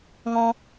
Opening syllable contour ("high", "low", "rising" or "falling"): high